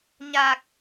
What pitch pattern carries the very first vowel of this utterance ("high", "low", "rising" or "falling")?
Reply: low